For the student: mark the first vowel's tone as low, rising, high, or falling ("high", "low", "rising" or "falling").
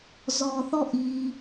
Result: low